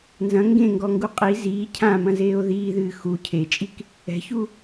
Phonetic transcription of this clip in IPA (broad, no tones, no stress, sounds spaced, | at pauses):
n z ɐ̃ ŋ ɡ ẽ ŋ ɡ ɔ ŋ ɡ u qʼ i z iː cʰ ã m ɐ̃ z eː o̯ ð iː ð ɨː x u cʰ e t͡ʃʼ i k | ɛ̤ ç u